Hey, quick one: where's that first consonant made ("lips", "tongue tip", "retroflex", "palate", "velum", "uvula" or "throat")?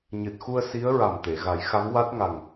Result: palate